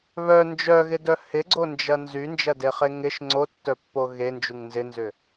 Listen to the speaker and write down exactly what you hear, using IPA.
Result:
β œ n d͡ʒ œ ɣ ɪ d œ h ɪ ɡ͡ǀ o n d͡ʒ ɐ n z y n d͡ʒ ɐ d e χ e ŋ ɪ ʃ ŋ͡ǀ o tː œ pː o ɣ e n d͡ʒ u ŋ n z ɪ n z ʏ

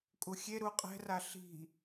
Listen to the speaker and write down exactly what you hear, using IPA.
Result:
kʼ u xʲ e ɾ u qʼ ɛ̤ r a ɬ i̤

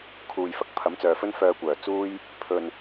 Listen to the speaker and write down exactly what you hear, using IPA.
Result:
kʰ uː˧ j f ɐ˨ k̚ pʰ ɐ˨˥ m t͡s œː˨ f ɵ˥ n f œː˧ kʷ œː˨˩ t͡s uː˥ j | pʰ ɵ˨ n

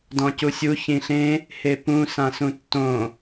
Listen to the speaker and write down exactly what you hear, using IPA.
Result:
d ɔ̃ c u sʲ u ç ĩ ɬ ẽ | h e p ũ s ã s ũ tː õ

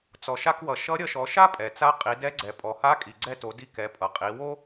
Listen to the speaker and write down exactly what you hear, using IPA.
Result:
t͡s ɔ˩ ʃ a˧ k w ʌ˩ ʃ ʌ˧˥ ɾʲ ʌ˧ ʃ ɔ˩˧ ʃ a˥ pʼ ɛ˩ t͡s a˧˥ qʼ i˩˧ d ɛ˧˥ ɡ͡ǀ ɛ˩ pʼ ɔ˩ h a˧˥ kʼ i˩ ɡ͡ǀ ɛ˧ t o˩˧ d i˧ k ɛ˩˧ pʼ ʌ˩ qʼ i˩˧ w o˥

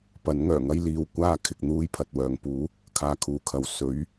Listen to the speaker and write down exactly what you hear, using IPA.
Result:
p ɐ˨˥ n ŋ œː˨˩ ŋ ɐ˥ j l iː˨ w kʷ aː˥ kʰ ɪ˧ k̚ n̪ uː˥ j pʰ ɐ˨ t̚ w œː˨ ŋ p uː˨˥ | kʰ aː˧ kʰ uː˨ kʰ ɐ˨ w s ɵ˨˥ ɥ

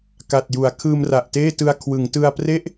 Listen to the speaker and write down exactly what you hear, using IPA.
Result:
k a˨˩ t̚ j u˩˦ a̯ kʰ ɯː˧ m r a˨˩ ʔ t eː˥˩ t ɯ˧ a̯ kʰ w ɯ˩˦ ŋ t ɯ˧ a̯ p r e˥˩ ʔ

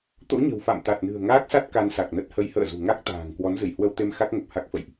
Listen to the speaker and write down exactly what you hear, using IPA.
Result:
t̪ o̰˧˥ ɲ ə̤˨˩ w f a̰˧˨ m t̪ a˨˩ t̚ n ɨ̤˨˩ ə̯ ŋ aː˦˥ k̚ s a˦˥ t̚ k a˧ n s a˨˩ k̚ n ə˦˥ t̚ h ə˨˦ j h ə̰ː˧˨ z ṳ˨˩ ŋ a˦˥ k̚ t̪ a̤ː˨˩ ŋ k w ɔ˨˦ n z ɨ˧˩ j h w ə˧ w t̪ e˧ m x a˦˥ k̚ ŋ ə˨˩ p̚ h a˦˥ k̚ f ə̰˧˨ j ʔ

